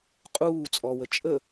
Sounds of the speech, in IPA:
qʼ uː t͡sʼ ɔ w ə t͡ʃʼ ə

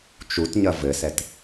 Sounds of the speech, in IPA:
t͡ʃ u t ɲ ɐ v ɘ s ɛ t

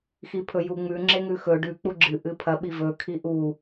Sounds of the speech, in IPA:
x i pʰ ɵ j u ŋ͡m ʉ ŋ͡ǁ e ŋ ʉ x ɵ ɖ ʉ k͡p u ɡ͡ǁ ɨ ʔ ɨ pʰ ɐ ɓ i v ɵ kʰ i ʔ u

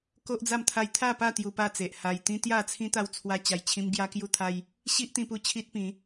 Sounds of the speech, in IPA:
k o˦ ʔ d͡z a˥˧ m t̪ʰ a˧ j t̪ʰ a˥˧ p a˥˧ t̪ j u˧ p a˥˧ t͡s e˨ ʔ h a˧ j t̪ ĩ˦ t̪ j a˥˧ t͡sʰ ĩ˦ t̪ a˦ w t͡sʰ w a˦ t͡ɕ a˧ j t͡ɕʰ ĩ˦ m ɡ j a˦ k j u˥˧ t̪ʰ a˦ j | ɕ i˦ ʔ t̪ ĩ˧ p u˧ t͡ɕʰ i˦ t̚ p ĩ˨˦

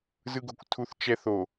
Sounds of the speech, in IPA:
z ɯ ɡ o̤ kʷ tʰ u θ t͡ʃ ɛ θ o

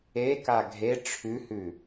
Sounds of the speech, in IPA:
e k a ɡʱ e ʈ͡ʂʰ ʉ h ʉ

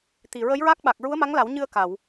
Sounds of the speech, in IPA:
t̪ i˨˩ ɹ ə˧˥ j ɹ a˦˥ k̚ ɓ a˨˩ k̚ ɹ u˧˥ ə̯ m a˧˥ ŋ l a˨˩˦ w ɲ ɨ˧ ə̯ k a˨˩˨ w

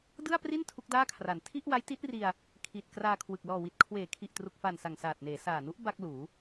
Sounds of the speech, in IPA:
d ɯ˥˩ a̯ p r i˥˩ n tʰ u˦˥ k̚ d aː˥˩ kʰ r a˨˩ n tʰ i˥˩ ʔ w a˦˥ j t i˦˥ t̚ r i˧ a̯ | kʰ i˨˩ t̚ k r aː˧ kʰ w ɯ˨˩ k̚ l ɔː˨˩ w i˨˩ t̚ kʰ w eː˩˦ kʰ i˨˩ ʔ t r u˨˩ k̚ f a˨˩ n s a˨˩ ŋ s aː˨˩ t̚ n eː˩˦ s aː˨˩ n u˦˥ ʔ b a˥˩ k̚ l uː˩˦

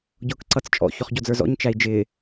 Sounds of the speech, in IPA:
ɟ ʊː k ǀ ʌ t͡s t͡ʃʼ ɔ̰ ç ɔ χ ɟ ɔ d͡z ə˞ z ɔ̰ ɲ t͡ʃ æ i̯ d͡ʒ ɪː

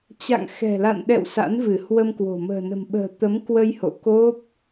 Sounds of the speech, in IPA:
t͡ɕ a̰˧˨ ŋ x ɛ̤˨˩ l a̰˧˨ n ɗ ɛ̰˧˨ w s a̰˧˥ n v ɨ˧˩ h w ə˧ m k w o̤˨˩ m ə̤ː˨˩ n ə̤˨˩ m ɓ ə̤ː˨˩ t̪ ə˨˦ m k w ə˧ j h o̰˧˨ k o˦˥ p̚

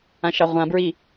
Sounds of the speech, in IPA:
ã ʃ ɑ ʁʷ ã b ɹ i

